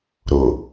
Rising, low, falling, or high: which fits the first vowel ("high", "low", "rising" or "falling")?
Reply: low